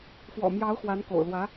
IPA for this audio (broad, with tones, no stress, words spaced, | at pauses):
fwɔ̰˨˩mjɑ˧˥ʊ̯ xwa˧˥nko̰˨˩ʊ̯ lwä˧˥